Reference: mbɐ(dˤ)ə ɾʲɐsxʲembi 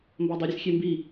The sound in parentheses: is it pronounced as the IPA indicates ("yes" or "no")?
yes